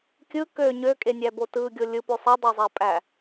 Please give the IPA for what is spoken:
kʲ ɯ k ø ɲ ø kʼ e nʲ æ b o t ɯ ɡʲ o lʲ ɯ p ø sˤ æ dˤ æ zˤ æ pʼ æ

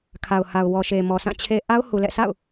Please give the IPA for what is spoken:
kʰ a˨ ʊ̯ h a˨ ʊ̯ w ɔ˨ ʃ e˨ m ɔ˨ sʰ ã˦˨ t͡ɕʰ e˦ ʔ a˦ ʊ̯ h u˨ l ɛ̰˦˨ sʰ a̰˦˨ ʊ̯

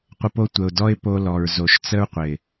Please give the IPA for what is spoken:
qʷ ə˧ p o˦ tʷ ə˨ ʊ̯ d ɔ˦ ɪ̯ p o˧ l ɔ˨ ɹ z o˨ ʃ t͡s ə˦ ɹ qʷ ɪ˨

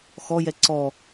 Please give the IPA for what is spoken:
x ɔ j ɛ ǀ ɔ

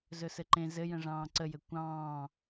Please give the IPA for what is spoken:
z ɵ s ɘ ǃ ẽ z ɘ j ə̃ ʐ ɑ̃ː ǀ ə j ɘ kʷ ɑ̃ː

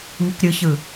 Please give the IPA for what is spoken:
ŋ i k ɾʲ ɯ ç ɯ

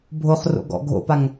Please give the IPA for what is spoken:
bʱ o χ r o̰ ɡ ɔ̰ ɡʱ o̰ p a ŋ

